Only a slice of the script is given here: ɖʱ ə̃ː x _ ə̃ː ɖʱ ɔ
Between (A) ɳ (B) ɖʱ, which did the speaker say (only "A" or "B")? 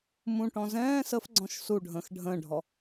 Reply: B